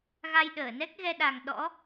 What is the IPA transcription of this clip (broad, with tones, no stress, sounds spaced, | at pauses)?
ɣ a˧ j ɗ əː˧˩ n ɛ˦˥ k̚ ɣ ɛ˧ ɗ a˨˩ ŋ ɗ ɔ̰˧˥